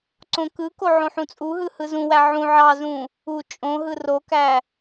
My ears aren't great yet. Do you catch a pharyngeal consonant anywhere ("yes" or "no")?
yes